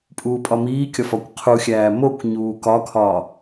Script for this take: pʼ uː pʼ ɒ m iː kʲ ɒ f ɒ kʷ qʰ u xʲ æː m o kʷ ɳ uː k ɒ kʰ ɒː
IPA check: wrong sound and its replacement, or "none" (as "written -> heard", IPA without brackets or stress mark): ɳ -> ɲ